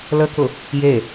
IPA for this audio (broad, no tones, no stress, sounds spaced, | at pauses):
l ə k ʊ | j e